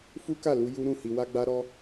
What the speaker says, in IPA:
fu˦ka˦˨lu˧ ju˦ɾũ˦˨ hi˧wa˦ɡ͡ba˦ ɾɔ˦

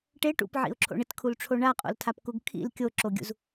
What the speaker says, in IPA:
ʈe ʈṵpʕḭʊ̯ǁʰo̰ ɳɪtkʰulʈ͡ʂʰo ɳaqʼo̰ltʰapkuɡ kʰḭl kʲoǁoɡʲṵz

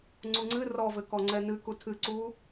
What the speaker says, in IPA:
ŋ͡ǀuŋ͡ǀɨ rɔvɘ kɔŋ͡ǀɛnɨ kutʰɨǀu

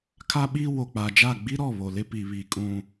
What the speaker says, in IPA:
kʰa˦ɓi˦ wo˨k͡pa˨d͡ʒa˦˨ ɡ͡bi˦ɾɔ˦˨ βo˨lɪ˦pi˨ βi˨kʼũ˨

